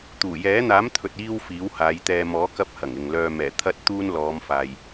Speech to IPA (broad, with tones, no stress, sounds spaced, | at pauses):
t̪ uː˨˩ j ɛː˨˥ n̪ aː˨˥ m t̪ʰ ɵ˨ t̚ iː˧ w f iː˨˥ w h aː˨˧ j t̪ ɛː˧ m ɔː˨˥ k ɐ˧ p̚ h ɐ˨˩ ŋ ɪ˨ ŋ l œː˧ m ɛː˨˩ t̪ʰ ɐ˥ t̚ t̪ uː˥ n l ɔː˨˧ m f aː˨ j